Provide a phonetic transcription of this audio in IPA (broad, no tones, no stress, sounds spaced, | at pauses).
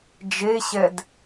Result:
d͡ʒ e ɕ ɛ d